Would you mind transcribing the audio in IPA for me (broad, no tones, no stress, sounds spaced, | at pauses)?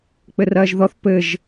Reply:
k͡p ɘ r ɐː ʒ ð ɔ θ p ɘ ʒ